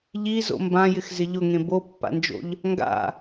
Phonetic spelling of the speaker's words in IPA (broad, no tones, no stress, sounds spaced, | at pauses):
ʎ i z o̰ m b ã j ɪ x z ɪ ʎ ʊ ŋ ẽ b o pː a̰ n d͡ʒ o̰ ʎ | ŋ ɡ a̰